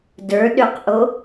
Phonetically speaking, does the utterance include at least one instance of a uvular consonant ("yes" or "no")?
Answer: yes